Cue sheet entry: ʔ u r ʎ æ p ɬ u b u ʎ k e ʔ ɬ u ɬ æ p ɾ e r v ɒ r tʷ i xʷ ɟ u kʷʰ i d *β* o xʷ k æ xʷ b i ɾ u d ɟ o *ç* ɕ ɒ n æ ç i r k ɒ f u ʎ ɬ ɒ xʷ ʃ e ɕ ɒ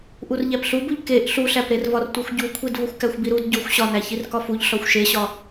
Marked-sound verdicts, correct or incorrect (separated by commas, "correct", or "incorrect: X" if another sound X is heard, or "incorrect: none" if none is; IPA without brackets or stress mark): incorrect: v, incorrect: xʷ